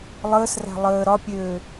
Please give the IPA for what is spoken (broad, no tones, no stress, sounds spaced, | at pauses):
lˠ əː s r æ̤ lˠ əː ɾ ɒ pʲ øː